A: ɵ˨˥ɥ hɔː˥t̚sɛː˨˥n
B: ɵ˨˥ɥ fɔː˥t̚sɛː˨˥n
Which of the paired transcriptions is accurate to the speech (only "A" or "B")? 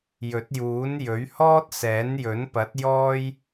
A